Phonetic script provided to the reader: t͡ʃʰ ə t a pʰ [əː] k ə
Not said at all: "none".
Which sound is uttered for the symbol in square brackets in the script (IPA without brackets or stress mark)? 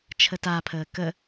əː